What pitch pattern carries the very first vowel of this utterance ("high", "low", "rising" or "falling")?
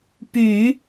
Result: low